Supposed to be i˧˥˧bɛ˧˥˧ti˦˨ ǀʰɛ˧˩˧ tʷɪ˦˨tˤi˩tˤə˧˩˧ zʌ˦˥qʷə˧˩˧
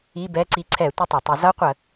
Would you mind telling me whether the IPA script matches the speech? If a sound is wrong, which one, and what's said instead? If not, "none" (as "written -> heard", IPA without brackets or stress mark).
t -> ǀ